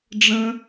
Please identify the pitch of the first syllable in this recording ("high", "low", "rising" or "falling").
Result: high